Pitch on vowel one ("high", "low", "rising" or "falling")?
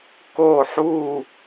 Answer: falling